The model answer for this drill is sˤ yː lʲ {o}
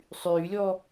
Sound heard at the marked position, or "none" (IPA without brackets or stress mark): ɔ